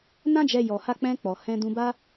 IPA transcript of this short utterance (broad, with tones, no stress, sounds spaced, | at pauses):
n ã˦ d͡ʒ ɛ˧ j ɔ˨ h a˧ k͡p ɛ̃˧ k͡p ɔ˨ h ɛ̃˧ d ũ˧ b a˦